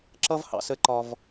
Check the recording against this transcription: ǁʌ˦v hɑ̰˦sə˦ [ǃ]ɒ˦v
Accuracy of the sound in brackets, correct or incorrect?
correct